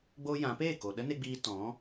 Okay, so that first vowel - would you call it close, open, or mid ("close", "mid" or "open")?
mid